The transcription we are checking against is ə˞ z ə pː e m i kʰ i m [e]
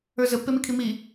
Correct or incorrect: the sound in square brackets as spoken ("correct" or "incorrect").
incorrect